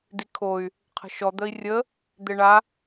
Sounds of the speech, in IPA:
dikʰoy̯ | qʰə̤ʃɔ d̪əi̯rʲə | d̪eɳa

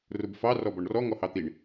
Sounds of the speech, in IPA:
rʊbfɑ rɔbɔɳrɔ ŋɔhɑt̪iɳ

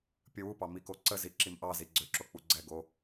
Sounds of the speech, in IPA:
pʲəwupɑ mikoǀəzi ǁimʔɑzi ɡ͡ǀøǁo k͡puɡ͡ǀɛɡo

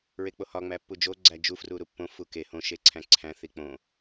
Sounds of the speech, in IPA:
ɹek͡pohɒ ŋ͡mæpːud͡ʒo ɡ͡ǀæd͡ʒu fruɾupːõ fuke hõ ʃeǀʰæ̃ǀʰæ̃ θik͡põ

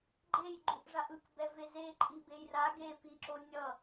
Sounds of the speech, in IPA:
ɡ͡ǃej ɡ͡ǃuʔʐaʔɯk bɛveze ǃʼibejra ɡe piǁonʲʌ

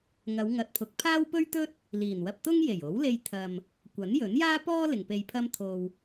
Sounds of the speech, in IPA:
ŋɐ˨˧wŋɐ˨t̚pʰʊ˨˥k̚pʰaː˥w pɵ˥ɥt̪ɵ˥t̚ | liː˨˩nwɐ˧p̚ t̪ʊ˥ŋje˨˩jo˨˥wle˧j t̪ʰɐ˨m | kʷɐ˨˥njɵ˨˥n jaː˥pɔː˥ lɪ˨ŋpe˧jpʰɐ˥mt̪ʰo˧w

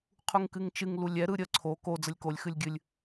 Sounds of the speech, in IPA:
qʰuŋkɨŋt͡ʃɨŋ lulʲɛ ɾɯɾʲə ǀʰo ko d͡zəlʲkolʲ xɨlʲɡʲɨlʲ

